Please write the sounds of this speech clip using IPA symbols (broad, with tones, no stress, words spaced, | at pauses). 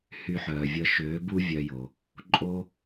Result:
hy˧ħœː˨vʲə˧ ʃøː˨˦bu˦ vʲœ˧jo˨ | ǃʼo˦